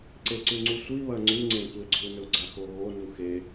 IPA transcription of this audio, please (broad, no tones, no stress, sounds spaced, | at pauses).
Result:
ǀ e ǀ ʉ ŋ͡ǀ u sʷ i β ɐ ŋ͡ǀ ʉ ŋ͡ǀ ẽ tʷ e ɡ͡ǀ u n ɵ ɡ͡ǀ a x o ɣ o n u x e